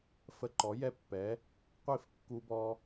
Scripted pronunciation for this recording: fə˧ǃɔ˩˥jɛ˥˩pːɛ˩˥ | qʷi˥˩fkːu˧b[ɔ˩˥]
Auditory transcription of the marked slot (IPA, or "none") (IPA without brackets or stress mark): ɔ˧